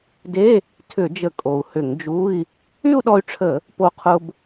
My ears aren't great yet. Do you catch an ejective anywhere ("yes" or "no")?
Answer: yes